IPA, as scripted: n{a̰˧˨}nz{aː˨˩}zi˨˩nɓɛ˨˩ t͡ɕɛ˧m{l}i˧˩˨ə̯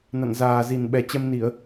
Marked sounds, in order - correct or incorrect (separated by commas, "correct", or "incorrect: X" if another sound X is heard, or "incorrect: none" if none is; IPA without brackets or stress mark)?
correct, correct, incorrect: n